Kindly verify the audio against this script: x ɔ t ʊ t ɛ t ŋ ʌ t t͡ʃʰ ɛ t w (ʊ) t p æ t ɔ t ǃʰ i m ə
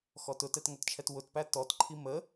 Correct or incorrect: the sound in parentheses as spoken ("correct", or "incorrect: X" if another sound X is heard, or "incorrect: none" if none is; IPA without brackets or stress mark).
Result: correct